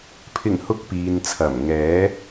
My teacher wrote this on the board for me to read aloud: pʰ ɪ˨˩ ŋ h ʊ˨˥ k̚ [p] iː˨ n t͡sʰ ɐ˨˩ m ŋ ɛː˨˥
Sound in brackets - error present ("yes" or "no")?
no